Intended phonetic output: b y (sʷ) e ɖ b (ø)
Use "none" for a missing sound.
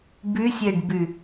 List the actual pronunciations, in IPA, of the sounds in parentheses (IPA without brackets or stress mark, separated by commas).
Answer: sʲ, y